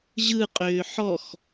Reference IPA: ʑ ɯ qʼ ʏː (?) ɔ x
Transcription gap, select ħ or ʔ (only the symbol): ħ